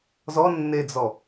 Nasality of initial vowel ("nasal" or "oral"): oral